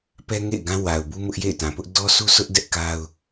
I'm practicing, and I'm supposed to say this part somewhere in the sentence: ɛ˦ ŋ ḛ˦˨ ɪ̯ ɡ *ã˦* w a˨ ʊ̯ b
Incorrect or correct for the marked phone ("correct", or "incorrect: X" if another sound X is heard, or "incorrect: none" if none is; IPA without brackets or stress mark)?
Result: correct